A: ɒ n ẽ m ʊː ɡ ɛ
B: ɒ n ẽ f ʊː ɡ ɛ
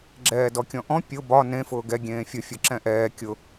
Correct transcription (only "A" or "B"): B